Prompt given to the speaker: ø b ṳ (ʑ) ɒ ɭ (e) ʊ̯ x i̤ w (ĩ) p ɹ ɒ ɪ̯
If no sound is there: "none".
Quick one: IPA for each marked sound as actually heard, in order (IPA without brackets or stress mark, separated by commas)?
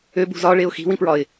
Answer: z, e, ĩ